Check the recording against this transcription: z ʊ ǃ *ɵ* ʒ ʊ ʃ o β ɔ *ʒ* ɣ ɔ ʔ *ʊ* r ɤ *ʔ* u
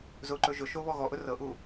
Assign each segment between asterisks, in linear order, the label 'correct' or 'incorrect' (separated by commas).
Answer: correct, incorrect, correct, correct